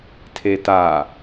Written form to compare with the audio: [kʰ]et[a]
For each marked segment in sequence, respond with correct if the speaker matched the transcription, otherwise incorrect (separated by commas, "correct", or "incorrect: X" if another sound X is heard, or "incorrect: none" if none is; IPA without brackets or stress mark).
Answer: incorrect: tʰ, correct